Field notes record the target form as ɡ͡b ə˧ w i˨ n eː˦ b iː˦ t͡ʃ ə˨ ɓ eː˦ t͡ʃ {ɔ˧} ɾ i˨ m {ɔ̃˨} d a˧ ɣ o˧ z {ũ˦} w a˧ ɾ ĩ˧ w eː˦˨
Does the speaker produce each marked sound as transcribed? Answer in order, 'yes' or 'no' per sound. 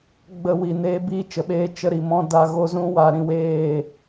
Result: no, no, yes

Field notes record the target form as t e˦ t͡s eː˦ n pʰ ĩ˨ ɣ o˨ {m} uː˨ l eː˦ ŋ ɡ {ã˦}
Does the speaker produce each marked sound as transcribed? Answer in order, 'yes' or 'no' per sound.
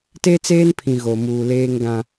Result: yes, yes

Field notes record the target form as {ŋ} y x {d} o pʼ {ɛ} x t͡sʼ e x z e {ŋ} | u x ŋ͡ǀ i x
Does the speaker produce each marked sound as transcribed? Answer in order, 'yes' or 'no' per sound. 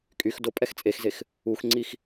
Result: no, yes, yes, no

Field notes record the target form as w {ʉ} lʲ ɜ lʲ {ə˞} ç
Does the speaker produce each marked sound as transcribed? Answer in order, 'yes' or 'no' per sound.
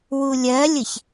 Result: no, no

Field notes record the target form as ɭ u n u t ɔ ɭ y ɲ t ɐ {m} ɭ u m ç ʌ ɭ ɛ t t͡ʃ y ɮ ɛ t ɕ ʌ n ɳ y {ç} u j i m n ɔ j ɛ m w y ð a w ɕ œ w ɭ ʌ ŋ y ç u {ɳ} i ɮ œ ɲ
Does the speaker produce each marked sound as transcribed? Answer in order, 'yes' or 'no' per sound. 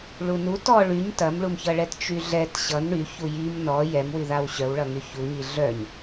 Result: yes, yes, no

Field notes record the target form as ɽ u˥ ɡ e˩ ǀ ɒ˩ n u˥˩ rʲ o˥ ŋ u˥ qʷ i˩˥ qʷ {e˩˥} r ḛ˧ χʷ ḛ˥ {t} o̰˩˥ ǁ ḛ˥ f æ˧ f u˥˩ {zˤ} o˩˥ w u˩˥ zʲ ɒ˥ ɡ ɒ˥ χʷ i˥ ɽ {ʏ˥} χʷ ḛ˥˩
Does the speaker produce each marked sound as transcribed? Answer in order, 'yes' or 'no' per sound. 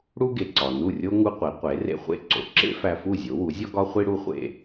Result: yes, no, no, no

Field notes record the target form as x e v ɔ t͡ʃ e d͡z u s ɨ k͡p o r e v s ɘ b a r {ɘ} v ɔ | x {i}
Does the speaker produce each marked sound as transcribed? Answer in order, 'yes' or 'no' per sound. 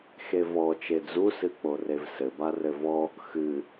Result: yes, no

